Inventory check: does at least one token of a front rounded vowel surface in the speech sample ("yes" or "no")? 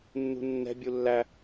no